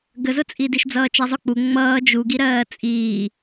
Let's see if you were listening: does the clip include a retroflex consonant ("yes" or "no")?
no